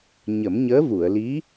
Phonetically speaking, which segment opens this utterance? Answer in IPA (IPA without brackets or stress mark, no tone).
ɲ